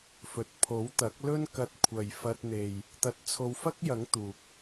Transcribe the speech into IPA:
f ɵ˨ t̚ pʰ o˨˥ w t̪ ɐ˨˥ k̚ l ɵ˥ n k ɐ˧ t̚ kʷʰ ɐ˨ j f ɐ˧ t̚ n̪ e˨ j | t̪ ɐ˧ t̚ t͡sʰ o˧ w f ɐ˥ k̚ j ɐ˨˥ ŋ t̪ uː˨ k̚

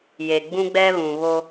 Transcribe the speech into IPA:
j e˨ ɡ͡b ũ˦ ɡ͡b ɛ˦ β ũ˨ β o˦

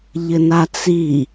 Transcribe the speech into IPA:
ʎ ɘ n a t͡s i

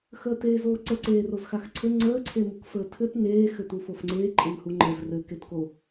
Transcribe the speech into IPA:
x əː t eː z oː ǀ ə ǀ eː r o z x a x ǀʰ ɘ ŋ͡ǀ əː ǀʰ e m u k f əː tʰ ɘ t n eː x ɘ t u f o f ŋ͡ǀ eː ǃʼ ɘ n h u ŋ͡ǃ ə z r ɘ k e t k o

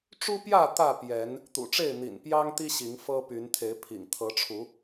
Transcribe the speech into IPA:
ʈ͡ʂ u˦ p j ä˥˨ t̪ ä˥˨ p j ɛ˨˦ n | t̪ ṵ˨˩ ʈ͡ʂ e˥˨ ɪ̯ n̪ ḭ˨˩ n p j ɑ˦ ŋ t̪ i˦ ɕ i˨˦ ŋ f ɤ˦ p y˨˦ n t̪ʰ e˨˦ ɪ̯ pʰ ḭ˨˩ ŋ t̪ʰ ɤ˨˦ ʈ͡ʂʰ u˨˦

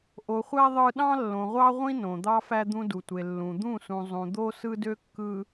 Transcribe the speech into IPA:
ʔ o˨ χʷ æ˦ ðˤ ɯ˦ ɗ ɑ̃˦ lː õ˨ ʁʷ ɑ˦ ʁʷ ĩ˦ n õ˨ d̪ ɑ˦ f æ˦ d̪ ũ˦ d u˨ tʷ e˨ lː ũ˨ d̪ ũ˦˨ s ũ˨ zˤ ũ˨ d̪ o˦ s ɯ˦ d ø˦ kː ɯ˨

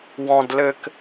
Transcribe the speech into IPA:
w ɔ̃ d l ɘ k

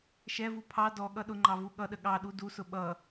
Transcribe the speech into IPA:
ʃ ɛ v u pʰ ɑ d ɔ ɠ ʌ ɗ ʊ ŋ͡ǃ ɑ v u ɠ ʌ ɗ ə ɠ ɑ ɗ u d u s ʊ ɓ ʌ

